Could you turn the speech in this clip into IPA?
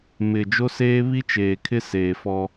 m ɪ˨ d͡ʒ o˦ s eː˦ β i˦ t͡ʃ eː˨ kʰ ɪ˦ s eː˨ f ɔ˦

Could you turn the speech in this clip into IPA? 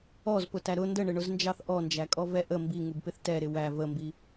ɔ z p ʊ t æ ɾ ʊ n d ə ɳ ɪ ɳ ʊ z n d͡ʒ ɑ θ ʔ ɔ n d͡ʒ æ kʼ ɔ v ɛ ʔ ə m b i ŋ u b p ɪ θ t ɛ ɾ ɪ w æ v ə m b i

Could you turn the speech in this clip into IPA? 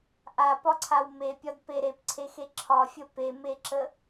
ʔ a p ɒ ǀʰ a w m e pʲ ɒ d p e ɾ e p ǀʰ e x e ǁʰ ɒ fʲ ə p e m e ǁ ə

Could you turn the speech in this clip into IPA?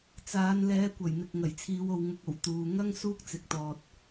t͡s aː˨˧ n l ɛː˨˧ kʷ ɐ˨˩ j n̪ ɪ˨ k̚ ŋ ɐ˨˩ j t͡sʰ iː˨˧ w o˨ w ŋ ʊ˨ k̚ o˨˩ w t̪ uː˨ ŋ ɐ˥ ŋ s uː˥ k̚ t͡s ɪ˨ k̚ t̪ ɔː˨ t̚

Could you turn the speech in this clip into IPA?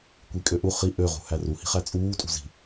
kʷ i kʼ ø ʔ u χ i ʔ ø ʁ ṳ h æ r u h i̤ χ æ t͡sʼ uː tʼ ṳ z i̤

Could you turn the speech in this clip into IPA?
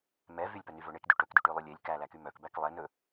m ɛ v y lʲ p œ n y v ɵ ɳ e k d y ʈ ɵ k d y ʈ y lˠ y lʲ e lʲ k æ l æ k y m œ k b æ k lˠ ɛ n ɵ

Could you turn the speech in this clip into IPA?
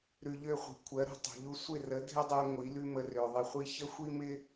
ɾ ʉ˨ ʎ ø˦˨ χʷ i̤˨ kʷʰ ɜ˨˦ ɾ ṳ˨ tˤ ṳ˨ ʎ u˦ sʷ ɪ˦˨ r ə˨˦ dʱ ɪ˦ dˤ ɜ˧ ŋʷ i˨˦ l ʉ˦ m ə˧ r ø˨ ðˤ ɪ˧ χʷ i˦ ç ə˦ xʷ i˦ m ɪ˦

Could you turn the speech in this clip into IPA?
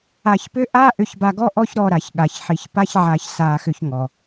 a˧ ç p ʏ˦ ʔ a˦ ʔ ʏ˧ ç b a˧ ɡ ɔ˦ ʔ ɔ˦ ç ɾ ɔ˧ ɾ a˨ ç ɠ a˨ ç ħ i˧ ç p a˦ ç ʕ a˧ ç s a˧ x ʏ˧ ç ŋ ɔ˨

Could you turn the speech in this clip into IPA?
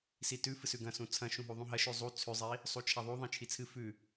s i t ʉ f ɨ s ʉ ɡ ɐ̃ s ũ t͡sʰ ɐ̃ ʃ ũ ɦ u ðˤ ũ ɦ ɐ ʃ ʉ zˤ u t͡sʰ ʉ zˤ i | sˤ u t͡ʃʰ a ðˤ u ðˤ ĩ t͡ʃʰ i t͡sʰ ɨ f ʉ

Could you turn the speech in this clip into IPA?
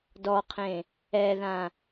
d ɔ qʰ ẽ | ɛ ð ã

